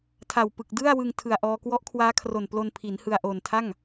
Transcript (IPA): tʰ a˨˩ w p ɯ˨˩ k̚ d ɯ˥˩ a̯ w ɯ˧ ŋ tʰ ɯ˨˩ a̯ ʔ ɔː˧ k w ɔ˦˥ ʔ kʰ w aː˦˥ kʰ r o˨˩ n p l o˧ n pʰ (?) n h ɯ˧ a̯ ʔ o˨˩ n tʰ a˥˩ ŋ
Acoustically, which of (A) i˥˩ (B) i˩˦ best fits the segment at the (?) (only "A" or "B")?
B